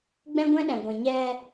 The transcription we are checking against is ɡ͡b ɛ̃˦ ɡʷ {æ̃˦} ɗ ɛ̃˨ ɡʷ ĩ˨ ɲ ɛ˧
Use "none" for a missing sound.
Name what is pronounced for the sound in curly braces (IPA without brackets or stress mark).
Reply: ɛ̃˦